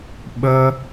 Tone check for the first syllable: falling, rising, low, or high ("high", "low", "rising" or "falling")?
high